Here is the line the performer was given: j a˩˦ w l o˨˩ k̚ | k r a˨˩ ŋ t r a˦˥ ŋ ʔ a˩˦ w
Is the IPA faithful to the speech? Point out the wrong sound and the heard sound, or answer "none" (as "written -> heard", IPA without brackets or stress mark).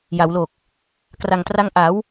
none